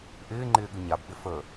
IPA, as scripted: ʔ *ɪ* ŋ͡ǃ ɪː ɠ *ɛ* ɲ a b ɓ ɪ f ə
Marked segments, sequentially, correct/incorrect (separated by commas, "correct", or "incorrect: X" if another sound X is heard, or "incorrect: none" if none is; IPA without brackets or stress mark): incorrect: ɪː, incorrect: ɨ